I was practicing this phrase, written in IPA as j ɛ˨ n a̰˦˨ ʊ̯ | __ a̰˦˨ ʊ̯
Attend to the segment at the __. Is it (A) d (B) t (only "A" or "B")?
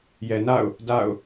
A